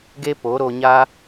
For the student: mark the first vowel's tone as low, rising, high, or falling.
high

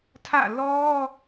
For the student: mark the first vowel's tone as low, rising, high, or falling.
falling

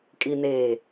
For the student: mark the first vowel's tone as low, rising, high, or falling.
low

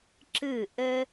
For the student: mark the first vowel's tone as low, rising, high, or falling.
falling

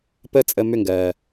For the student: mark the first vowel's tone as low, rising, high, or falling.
high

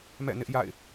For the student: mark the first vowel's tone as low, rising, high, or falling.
falling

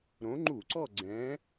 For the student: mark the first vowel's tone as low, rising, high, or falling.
rising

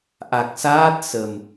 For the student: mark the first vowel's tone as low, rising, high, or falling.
low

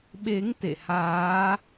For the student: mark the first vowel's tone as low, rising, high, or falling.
rising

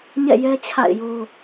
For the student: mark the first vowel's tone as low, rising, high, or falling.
falling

